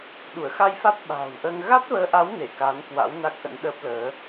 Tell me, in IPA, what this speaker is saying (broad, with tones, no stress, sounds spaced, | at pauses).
ɗ u˧˩ ə̯ x a˧ j f a˦˥ t̚ ɓ a̤ː˨˩ w ʔ əː˧ ŋ ɣ a˦˥ t̚ v əː˨˦ ʔ a˨˦ w n e˧˩ k a˨˦ n k w a̰˧˥ w n a˦˥ k̚ ʔ ə̰˧˥ n ɗ əː˦˥ p̚ l əː˨˦